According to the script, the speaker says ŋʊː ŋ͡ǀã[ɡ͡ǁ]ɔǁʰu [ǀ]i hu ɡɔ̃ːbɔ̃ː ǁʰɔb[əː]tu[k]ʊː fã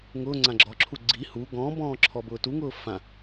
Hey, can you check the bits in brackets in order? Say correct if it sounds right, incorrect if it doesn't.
correct, incorrect: ɡ͡ǀ, incorrect: ʊː, incorrect: ŋ

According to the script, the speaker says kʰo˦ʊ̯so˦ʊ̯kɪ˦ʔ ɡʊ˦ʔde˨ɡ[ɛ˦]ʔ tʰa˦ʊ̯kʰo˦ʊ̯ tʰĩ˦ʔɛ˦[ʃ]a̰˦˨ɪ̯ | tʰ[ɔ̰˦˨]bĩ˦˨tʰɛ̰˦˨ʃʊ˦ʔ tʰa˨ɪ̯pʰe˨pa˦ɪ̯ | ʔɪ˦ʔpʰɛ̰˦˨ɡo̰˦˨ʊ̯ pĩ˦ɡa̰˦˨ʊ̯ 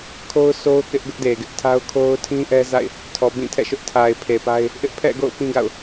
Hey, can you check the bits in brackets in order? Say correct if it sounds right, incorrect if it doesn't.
incorrect: ɪ˦, incorrect: z, incorrect: ɔ˨

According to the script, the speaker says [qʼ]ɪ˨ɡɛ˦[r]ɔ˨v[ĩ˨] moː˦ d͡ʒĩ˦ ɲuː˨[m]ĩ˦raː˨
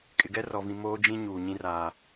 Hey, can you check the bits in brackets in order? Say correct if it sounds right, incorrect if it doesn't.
incorrect: kʼ, correct, correct, incorrect: ɲ

